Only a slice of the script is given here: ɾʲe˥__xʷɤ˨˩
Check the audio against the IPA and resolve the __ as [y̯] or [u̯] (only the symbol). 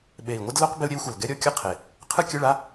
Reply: u̯